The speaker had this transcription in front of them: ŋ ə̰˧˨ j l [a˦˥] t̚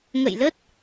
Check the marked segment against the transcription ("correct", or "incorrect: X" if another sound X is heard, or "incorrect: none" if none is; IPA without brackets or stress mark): incorrect: ə˦˥